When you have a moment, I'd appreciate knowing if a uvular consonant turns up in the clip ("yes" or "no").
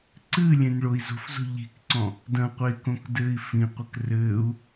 yes